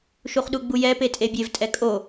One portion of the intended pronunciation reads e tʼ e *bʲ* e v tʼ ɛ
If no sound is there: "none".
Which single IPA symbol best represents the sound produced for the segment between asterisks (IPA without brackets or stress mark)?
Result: bʲ